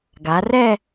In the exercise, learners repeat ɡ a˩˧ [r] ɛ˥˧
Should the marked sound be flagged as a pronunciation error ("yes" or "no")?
no